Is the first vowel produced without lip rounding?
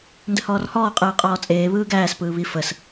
yes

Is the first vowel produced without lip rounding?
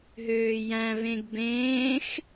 no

